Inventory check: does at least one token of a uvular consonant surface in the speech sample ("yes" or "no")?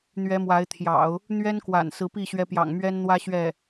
no